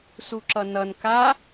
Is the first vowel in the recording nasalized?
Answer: no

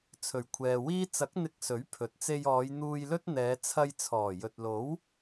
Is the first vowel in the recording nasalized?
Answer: no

